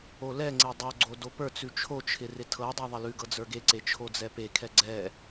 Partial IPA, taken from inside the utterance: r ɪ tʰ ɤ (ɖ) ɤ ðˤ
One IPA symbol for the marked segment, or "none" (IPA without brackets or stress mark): dˤ